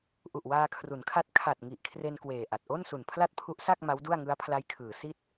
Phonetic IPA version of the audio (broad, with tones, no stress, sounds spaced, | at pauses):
ʔ u˨˩ ʔ w aː˧ kʰ r u˩˦ n kʰ a˦˥ t̚ kʰ a˨˩ t̚ ŋ i˨˩ ʔ kʰ r e˧ n k w eː˨˩ ʔ a˨˩ t̚ ʔ o˥˩ n s u˨˩ n pʰ l a˥˩ t̚ pʰ u˦˥ ʔ s a˥˩ k̚ m a˦˥ w d u˥˩ a̯ ŋ ɯ˦˥ a̯ pʰ l a˦˥ j kʰ ɯː˩˦ s i˥˩ t̚